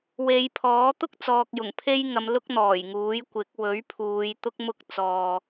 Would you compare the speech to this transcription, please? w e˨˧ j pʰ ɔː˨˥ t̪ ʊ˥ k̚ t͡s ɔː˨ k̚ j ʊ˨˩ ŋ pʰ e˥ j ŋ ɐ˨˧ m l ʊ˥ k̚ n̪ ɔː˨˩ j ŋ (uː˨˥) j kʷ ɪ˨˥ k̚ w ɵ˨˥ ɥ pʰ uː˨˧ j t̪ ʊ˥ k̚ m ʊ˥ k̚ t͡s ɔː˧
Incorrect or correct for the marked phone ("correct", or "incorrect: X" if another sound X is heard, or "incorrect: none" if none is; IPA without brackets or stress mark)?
correct